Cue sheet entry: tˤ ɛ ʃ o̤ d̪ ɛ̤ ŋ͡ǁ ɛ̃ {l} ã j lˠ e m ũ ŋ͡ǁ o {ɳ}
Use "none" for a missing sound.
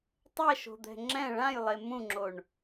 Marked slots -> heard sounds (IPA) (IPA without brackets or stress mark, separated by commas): ɭ, ɳ